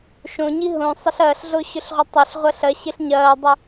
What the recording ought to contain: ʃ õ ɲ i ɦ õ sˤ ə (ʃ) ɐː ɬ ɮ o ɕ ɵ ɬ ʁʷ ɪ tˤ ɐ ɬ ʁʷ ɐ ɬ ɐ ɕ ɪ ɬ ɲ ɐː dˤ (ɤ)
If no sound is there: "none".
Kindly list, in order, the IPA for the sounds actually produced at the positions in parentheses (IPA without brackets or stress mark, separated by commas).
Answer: ɬ, ɵ